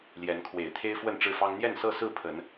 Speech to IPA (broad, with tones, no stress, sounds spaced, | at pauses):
l j ɛ˨˦ n kʰ w e˨˩ ɪ̯ t̪ʰ e˦ ɪ̯ f w ə˥˨ n ʈ͡ʂ ɻ̩˥˨ f ɑ˦ ŋ n̪ j ɛ˥˨ n s ɤ˥˨ s ɹ̩˥˨ pʰ ə˨˦ n